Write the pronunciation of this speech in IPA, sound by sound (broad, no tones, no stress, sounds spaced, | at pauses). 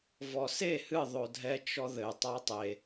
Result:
v ɔ s e h ɨ ðˤ o dʱ ɛ t͡ʃ ɔ ð ɘ tˤ a tˤ e